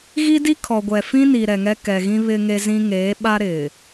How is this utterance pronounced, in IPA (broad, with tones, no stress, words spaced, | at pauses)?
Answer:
ɣi˦di˦kʰɔ˨ ɡʷɛ˨ fĩ˦ni˨ ɾɛ˨ŋɛ˦kɛ˨ ɣĩ˦βɪ˦ ŋe˦zĩ˦ ŋeː˨˦ɓa˦ɾɪ˨